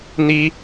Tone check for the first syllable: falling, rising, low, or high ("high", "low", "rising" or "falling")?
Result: high